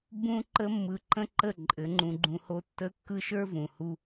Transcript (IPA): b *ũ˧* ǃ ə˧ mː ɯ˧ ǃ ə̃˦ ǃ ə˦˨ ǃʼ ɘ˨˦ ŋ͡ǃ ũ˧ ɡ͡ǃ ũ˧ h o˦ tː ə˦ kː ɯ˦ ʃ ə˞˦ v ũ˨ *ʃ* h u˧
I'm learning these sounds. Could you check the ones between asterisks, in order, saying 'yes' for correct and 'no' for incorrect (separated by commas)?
yes, no